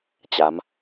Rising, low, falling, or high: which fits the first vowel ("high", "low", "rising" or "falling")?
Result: rising